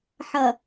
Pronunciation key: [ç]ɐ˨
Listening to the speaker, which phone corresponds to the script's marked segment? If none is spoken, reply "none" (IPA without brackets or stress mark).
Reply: ħ